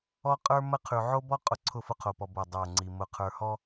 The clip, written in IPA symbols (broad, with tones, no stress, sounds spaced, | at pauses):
ɔ˦ qʼ ə˞˦ m ə˦ qʰ ʉ˨ ʕ o˦ b ɔ˦ qʼ ʊ˨ ǀʰ ʊ˦˨ f ʊ˦ qʰ o˨ p ɔ˨ b o˦˨ dˤ ə˞˦˨ ŋ͡ǀ i˨ m ʊ˨ qʰ ə˞˨ h ɔ˦